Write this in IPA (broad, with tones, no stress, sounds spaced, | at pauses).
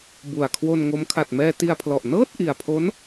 b u˨˩ a̯ kʰ w o˧ n ŋ o˦˥ m kʰ a˨˩ t̚ m ɛː˧ t i˧ a̯ pʰ l ɔ˨˩ ʔ n ɤː˥˩ t̚ ʔ i˨˩ a̯ pʰ o˦˥ n